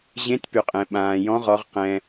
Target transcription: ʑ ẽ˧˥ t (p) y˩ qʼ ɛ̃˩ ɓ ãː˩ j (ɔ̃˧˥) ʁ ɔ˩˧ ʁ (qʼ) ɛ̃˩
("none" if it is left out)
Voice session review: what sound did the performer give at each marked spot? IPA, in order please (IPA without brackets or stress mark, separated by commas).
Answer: p, ɔ̃˧˥, q